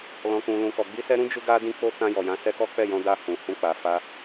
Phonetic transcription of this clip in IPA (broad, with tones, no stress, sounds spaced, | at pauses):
l ɔ̃˨ k ũ˨ l ũ˨ k ɔ˨ ɡ͡b i˧ s ɛ˧ ɾ ũ˦ d͡ʒ u˦ ɡ a˦ d ĩ˦ k͡p o˦ t ã˧ j ɔ˨ j ã˨˦ s ɛ˧ k ɔ˦ k͡p ɛ˦˨ j ɔ̃˧ d a˧ h ũ˨ h ũ˧ k͡p a˨ f a˧